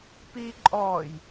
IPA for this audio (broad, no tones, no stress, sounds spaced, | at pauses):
p iː ǃʼ ɔː j